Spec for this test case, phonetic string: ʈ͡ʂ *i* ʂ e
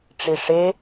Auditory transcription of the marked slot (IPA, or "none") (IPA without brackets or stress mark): i